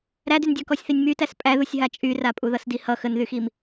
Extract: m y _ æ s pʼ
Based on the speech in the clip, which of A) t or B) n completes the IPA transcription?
A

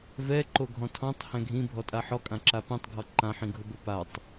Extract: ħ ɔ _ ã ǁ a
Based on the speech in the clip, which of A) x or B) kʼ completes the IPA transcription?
B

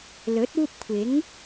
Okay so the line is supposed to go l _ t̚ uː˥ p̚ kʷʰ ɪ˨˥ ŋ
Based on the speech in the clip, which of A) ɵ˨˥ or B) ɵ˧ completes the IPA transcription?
A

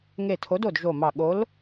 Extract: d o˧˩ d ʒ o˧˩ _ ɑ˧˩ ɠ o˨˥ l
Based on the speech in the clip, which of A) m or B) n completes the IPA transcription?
A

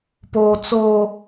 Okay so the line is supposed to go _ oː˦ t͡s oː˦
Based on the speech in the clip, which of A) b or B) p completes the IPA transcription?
B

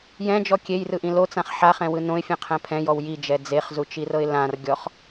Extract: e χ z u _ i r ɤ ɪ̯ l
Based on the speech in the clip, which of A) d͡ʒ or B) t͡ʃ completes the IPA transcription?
B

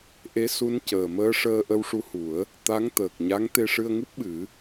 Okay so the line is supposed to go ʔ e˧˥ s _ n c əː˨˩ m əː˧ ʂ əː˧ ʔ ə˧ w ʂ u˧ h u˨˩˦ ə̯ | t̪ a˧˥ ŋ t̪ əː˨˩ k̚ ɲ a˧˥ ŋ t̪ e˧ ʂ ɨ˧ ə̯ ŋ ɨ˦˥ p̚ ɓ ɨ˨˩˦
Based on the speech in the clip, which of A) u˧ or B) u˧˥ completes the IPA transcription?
B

